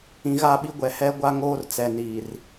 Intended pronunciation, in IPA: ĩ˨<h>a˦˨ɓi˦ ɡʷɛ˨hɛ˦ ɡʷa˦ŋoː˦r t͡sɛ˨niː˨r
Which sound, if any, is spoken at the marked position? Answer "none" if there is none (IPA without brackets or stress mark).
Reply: ɣ